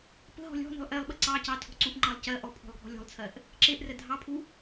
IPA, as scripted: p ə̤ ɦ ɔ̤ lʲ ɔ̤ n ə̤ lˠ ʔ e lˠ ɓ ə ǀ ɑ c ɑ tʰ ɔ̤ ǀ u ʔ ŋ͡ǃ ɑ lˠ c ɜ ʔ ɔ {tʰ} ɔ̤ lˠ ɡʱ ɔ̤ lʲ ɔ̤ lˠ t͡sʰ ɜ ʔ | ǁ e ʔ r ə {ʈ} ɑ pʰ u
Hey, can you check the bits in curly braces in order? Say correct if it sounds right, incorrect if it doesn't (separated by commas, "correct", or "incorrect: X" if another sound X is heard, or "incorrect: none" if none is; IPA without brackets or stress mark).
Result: incorrect: pʰ, incorrect: dʱ